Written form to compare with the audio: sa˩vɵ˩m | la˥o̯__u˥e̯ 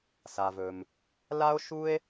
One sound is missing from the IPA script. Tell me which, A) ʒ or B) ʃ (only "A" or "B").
B